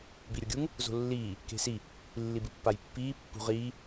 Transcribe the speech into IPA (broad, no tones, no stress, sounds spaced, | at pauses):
b i ɾʲ o ɡʲ u ŋ | z o̤ lː iː | k e̤ s i | lː i b ɨ pː a j pː iː pː ṳ ʁ iː